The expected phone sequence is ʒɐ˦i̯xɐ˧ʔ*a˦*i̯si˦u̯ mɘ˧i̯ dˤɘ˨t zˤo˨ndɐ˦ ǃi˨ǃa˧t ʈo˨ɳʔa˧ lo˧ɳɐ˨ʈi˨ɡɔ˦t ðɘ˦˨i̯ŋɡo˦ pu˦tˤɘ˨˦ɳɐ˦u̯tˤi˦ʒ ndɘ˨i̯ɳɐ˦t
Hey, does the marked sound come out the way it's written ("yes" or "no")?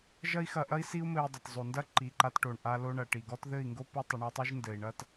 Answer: no